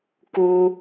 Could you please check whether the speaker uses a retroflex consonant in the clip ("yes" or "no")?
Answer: no